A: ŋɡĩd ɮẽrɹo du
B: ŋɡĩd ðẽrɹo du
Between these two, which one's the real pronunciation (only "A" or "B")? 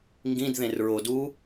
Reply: B